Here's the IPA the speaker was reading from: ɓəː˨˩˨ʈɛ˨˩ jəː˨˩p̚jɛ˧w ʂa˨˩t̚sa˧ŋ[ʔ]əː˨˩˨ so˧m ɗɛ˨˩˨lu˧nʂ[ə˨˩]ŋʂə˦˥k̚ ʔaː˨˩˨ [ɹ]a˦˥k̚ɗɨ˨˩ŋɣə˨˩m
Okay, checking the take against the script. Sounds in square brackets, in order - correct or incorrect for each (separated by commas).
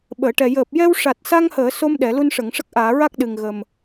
incorrect, incorrect, correct